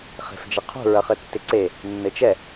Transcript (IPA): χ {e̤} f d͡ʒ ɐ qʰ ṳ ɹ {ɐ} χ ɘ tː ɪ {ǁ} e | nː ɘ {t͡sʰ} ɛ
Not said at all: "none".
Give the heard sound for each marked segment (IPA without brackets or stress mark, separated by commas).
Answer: e̤, ɐ, ǀ, t͡ʃ